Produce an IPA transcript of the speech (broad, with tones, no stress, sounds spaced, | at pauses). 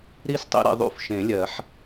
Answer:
ɾ i˦˥ s tˤ ḭ˦˨ ɾ ḭ˨ ðˤ ṵ˦˨ f ʃ ẽ˨˩˦ lʲ ɜ˨˩˦ ħ